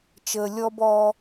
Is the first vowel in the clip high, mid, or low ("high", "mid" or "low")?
mid